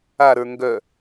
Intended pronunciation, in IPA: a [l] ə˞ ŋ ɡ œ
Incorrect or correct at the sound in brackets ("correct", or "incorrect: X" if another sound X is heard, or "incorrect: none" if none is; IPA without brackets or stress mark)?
incorrect: ɾ